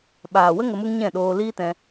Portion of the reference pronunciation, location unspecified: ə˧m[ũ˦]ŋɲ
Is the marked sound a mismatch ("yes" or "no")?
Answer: yes